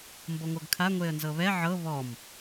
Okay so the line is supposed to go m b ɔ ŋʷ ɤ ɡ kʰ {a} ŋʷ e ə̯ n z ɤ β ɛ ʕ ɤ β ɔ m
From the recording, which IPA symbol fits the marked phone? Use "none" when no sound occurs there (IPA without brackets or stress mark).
a